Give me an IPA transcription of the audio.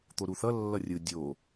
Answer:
t̪ o ɾ u θ ʌ lː ʌ rʲ ɯ dʲ o

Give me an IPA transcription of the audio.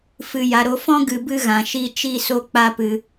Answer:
f ɨ˨ j a˨ ɾ o˧ f ɔ̃˦ ɡ ɨ˧ b ɨ˦ ɣ ã˨ ʃ i˦ t͡ʃ i˦ s o˦ k͡p a˦ p ɨ˧

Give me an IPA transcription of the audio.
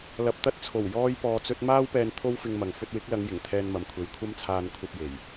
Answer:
l ɐ˧ p̚ t̪ ɐ˥ t̚ t͡sʰ o˨˩ w j ɔː˥ j p ɔː˧ t͡s ɵ˥ t̚ m aː˥ w p ɛː˧ n t̪ʰ o˥ w f ɪ˧ ŋ m ɐ˨ ŋ f ɵ˧ t̚ w ɪ˨˥ k̚ l ɐ˨˧ ŋ j ɪ˨˩ ŋ t̪ʰ ɛː˧ n m ɐ˨ m kʷʰ e˨˧ j kʷʰ ɐ˥ m t͡sʰ aː˧ n kʷʰ ɐ˧ p̚ j e˨˩ j

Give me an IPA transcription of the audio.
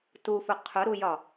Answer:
t u f ʊ qʰ ʊ ɾ u j ɒ

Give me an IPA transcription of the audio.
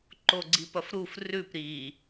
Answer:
ǃ o ɡ͡ǀ i p ɐ f ɾ u f r ʉ p ɾ i

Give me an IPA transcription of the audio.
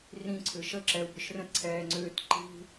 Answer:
r ĩ ǀʰ ʏ ʃ ə ǁ ɛ u̯ b ʏ ʃ r ə̃ t ǀʰ ɛː ŋ͡ǀ ʏː t ǃ i̤

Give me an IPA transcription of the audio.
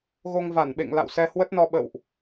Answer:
ɣ o˧ ŋ v a˧˩ n ɓ ḛ˧˨ ŋ l a̰˧˨ w s ɛ˧ h w ə˦˥ t̚ n ɔ˧ ɓ ə̰˧˨ w ʔ

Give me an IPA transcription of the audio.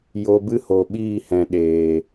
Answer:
j o˧ b ɨ˦ h o˨ ɓ iː˦˨ h ɛ̃˨ ɗ eː˨

